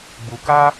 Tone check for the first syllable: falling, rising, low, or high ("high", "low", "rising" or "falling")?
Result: low